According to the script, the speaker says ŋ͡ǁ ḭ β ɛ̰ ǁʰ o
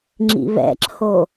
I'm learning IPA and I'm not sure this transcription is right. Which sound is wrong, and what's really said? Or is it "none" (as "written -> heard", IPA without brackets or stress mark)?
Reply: none